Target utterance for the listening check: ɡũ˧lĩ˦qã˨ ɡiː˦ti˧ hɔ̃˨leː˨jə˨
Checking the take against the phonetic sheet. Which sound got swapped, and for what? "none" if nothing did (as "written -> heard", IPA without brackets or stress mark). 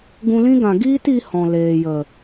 q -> ɡ